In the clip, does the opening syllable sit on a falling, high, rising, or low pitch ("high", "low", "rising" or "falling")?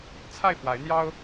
falling